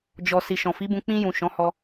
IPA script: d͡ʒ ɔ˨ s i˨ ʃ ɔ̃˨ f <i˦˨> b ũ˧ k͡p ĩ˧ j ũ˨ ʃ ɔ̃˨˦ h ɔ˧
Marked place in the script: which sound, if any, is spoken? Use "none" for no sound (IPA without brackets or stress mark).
i˨˦